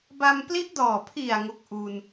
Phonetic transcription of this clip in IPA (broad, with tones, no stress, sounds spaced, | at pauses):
b a˧ m p l i˦˥ ʔ d ɔː˨˩ pʰ i˨˩ a̯ ŋ o˦˥ k̚ ʔ u˧ n